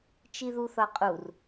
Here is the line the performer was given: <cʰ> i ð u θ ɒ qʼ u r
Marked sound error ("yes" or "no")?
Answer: yes